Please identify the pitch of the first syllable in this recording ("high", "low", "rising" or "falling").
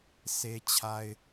high